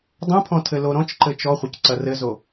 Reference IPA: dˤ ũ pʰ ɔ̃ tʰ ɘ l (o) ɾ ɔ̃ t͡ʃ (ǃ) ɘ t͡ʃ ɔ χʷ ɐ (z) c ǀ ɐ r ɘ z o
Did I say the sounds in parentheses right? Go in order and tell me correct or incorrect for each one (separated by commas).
correct, correct, incorrect